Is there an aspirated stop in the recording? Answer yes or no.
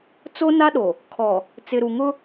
yes